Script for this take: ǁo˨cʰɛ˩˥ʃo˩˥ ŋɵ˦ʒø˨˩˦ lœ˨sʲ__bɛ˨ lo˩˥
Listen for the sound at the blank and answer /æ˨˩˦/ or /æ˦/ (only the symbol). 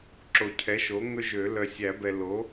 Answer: æ˨˩˦